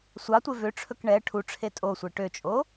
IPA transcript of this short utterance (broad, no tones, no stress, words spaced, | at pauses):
sʷɑtʷe vøʈ͡ʂʰɵk ɳɛ ʈʰuʈ͡ʂʰe tʼosʷe ʈøt͡ʃʼo